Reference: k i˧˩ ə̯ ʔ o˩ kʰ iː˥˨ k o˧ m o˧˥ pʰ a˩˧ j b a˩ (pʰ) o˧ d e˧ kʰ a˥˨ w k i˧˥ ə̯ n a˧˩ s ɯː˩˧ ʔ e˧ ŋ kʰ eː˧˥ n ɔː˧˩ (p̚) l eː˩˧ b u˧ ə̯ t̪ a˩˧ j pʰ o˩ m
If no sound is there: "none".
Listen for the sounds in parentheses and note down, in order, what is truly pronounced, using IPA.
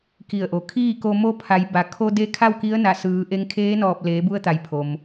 kʰ, p̚

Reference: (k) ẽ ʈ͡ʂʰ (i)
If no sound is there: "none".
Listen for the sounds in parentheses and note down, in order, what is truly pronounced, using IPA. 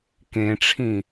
k, ĩ

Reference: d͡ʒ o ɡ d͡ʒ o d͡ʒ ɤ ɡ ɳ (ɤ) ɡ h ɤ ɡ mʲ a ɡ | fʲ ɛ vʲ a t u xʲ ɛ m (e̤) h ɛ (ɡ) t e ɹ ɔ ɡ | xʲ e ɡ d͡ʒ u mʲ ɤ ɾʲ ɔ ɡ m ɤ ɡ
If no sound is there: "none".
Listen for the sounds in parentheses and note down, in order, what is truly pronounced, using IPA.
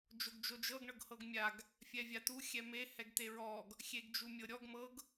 ɤ, e, ɡ

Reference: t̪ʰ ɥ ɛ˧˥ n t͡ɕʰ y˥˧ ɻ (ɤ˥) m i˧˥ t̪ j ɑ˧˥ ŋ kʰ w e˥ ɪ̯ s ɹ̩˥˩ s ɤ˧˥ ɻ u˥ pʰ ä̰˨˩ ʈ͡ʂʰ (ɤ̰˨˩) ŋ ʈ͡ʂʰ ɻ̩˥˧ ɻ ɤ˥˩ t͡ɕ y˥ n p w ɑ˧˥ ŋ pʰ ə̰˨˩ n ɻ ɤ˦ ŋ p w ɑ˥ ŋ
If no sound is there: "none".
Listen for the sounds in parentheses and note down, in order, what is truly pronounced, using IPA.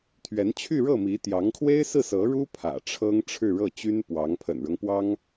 ɤ˥˩, ɤ˥

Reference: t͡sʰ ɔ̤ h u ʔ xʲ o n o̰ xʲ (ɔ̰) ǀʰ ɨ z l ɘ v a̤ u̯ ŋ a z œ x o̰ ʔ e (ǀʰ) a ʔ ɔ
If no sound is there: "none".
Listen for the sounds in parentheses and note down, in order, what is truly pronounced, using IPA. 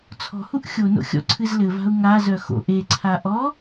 ɔ̰, ǀʰ

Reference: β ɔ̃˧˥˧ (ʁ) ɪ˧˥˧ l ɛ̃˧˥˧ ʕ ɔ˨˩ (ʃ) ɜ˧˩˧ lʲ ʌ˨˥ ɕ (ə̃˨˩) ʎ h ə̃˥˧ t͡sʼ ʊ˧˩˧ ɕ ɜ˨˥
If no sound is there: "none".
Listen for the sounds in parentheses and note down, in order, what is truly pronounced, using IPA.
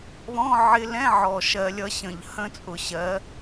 ʕ, ʃ, ə̃˨˩

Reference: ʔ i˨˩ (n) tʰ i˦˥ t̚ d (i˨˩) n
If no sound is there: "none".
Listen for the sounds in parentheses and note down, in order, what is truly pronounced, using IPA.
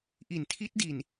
n, i˨˩

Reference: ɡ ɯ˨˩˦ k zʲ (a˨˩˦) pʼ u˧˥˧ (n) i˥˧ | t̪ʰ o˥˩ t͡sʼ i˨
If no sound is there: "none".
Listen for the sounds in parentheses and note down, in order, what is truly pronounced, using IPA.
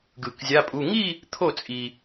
a˧˥˧, ŋ

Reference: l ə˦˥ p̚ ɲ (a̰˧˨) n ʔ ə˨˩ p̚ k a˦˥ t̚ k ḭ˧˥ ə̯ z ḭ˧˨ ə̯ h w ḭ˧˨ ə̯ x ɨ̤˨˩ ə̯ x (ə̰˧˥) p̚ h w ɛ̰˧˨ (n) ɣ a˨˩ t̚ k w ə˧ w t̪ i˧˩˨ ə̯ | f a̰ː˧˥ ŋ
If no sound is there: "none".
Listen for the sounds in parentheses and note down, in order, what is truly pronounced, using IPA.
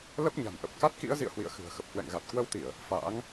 a̤˨˩, ə˨˩, ŋ

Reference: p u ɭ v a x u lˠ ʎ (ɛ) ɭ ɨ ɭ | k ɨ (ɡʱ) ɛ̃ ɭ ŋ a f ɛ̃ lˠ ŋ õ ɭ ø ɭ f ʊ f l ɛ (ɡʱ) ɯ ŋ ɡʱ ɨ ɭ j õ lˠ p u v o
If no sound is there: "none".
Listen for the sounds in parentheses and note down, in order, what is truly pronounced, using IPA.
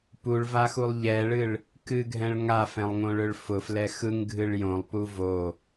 ɛ, ɡʱ, x

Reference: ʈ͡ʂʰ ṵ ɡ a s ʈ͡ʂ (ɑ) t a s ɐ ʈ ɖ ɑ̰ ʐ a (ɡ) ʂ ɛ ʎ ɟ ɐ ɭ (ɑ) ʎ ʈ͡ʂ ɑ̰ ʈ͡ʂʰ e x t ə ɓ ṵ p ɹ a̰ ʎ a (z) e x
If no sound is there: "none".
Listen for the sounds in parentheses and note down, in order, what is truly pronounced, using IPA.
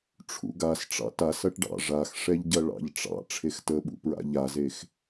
ɑ̰, x, ɑ̰, z

